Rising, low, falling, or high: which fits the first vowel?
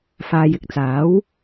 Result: low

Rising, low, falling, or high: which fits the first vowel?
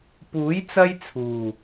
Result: rising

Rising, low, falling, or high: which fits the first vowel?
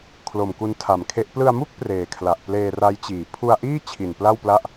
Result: low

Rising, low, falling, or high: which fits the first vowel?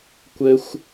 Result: low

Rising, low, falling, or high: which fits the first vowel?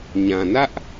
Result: low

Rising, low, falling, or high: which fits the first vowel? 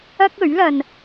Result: high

